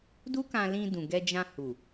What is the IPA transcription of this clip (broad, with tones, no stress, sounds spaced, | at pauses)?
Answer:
d u˦ k ã˧ l ĩ˧ d ũ˨ ɡ ɛ˧ d͡ʒ ã˧ h u˨